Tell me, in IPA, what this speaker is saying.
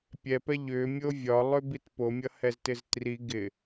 pʲɛpɛ ʎʏmʲo vʲɒlˠʏbit pomʲʌhɛztɪz tri ɡɪ

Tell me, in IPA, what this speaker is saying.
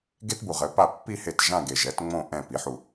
ɡe˥tbu˨˩ ʁɘ˩˥pa˥˩ pːi˥˧ he˥˩t ʒã˥˧ɡe˨˩ʒɛ˩˥t ŋ͡mõ˥˧ ʔɛ̃˥˩pi˩˥ħu˨˩

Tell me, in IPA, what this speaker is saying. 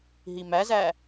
ɦimæzæ

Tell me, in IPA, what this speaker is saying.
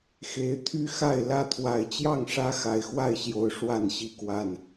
xe˨˦ɪ̯t̪ʰy˦xa˥˨ɪ̯ lä˥˨t̪ʰwa˨˩ɪ̯ t͡ɕjɑ˥˨ŋʂä˦ xa˨˩ɪ̯xwa˥˨ɪ̯ɕjo˨˩ʊ̯ ʂwa˥˨nɕi˥˨kwa˥˨n

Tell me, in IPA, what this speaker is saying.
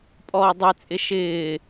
pʼɔːdˤet͡sʼɪ ʃɪː

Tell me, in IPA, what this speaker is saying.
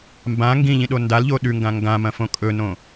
mbã ŋɡĩʎĩɗo ndalʎo ɗʉŋɡã ŋɡãmɐ̃fõ kʼɵnõ

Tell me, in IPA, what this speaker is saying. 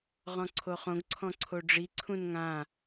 ʁɔ̃ǀʰoχõɡǀʰɔ̃ ǀʰoɖ͡ʐiǀʰũn ŋã

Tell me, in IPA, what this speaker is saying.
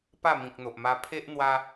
pa˥˧mĩ˨k̚n̪o˨ʔma˧ pʰe˦ʔ n̪wa˧

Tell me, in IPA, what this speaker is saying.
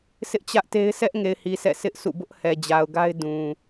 sʰɪ˦ʔt͡ɕä˦ʔte˦ɪ̯ sɛ˦ʔŋe˨ɪ̯hi˨ sʰɛ̰˦˨ sʰɪ˦ʔsʰṵ˦˨ bʊ˦ʔhɛ˨d͡ʑa˨ʊ̯ ɡa˦ɪ̯ dũ˨

